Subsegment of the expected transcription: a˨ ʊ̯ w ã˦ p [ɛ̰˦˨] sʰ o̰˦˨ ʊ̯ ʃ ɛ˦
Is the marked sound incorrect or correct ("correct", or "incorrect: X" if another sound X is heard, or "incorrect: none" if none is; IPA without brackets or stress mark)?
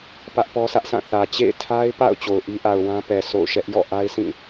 incorrect: ɛ˨